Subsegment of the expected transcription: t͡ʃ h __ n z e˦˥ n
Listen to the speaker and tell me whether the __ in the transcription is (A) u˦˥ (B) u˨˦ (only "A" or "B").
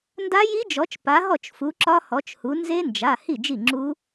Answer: B